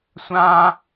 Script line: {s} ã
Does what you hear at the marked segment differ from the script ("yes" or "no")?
yes